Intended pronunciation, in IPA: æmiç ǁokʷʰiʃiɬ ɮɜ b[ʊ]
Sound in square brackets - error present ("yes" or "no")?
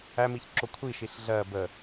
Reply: yes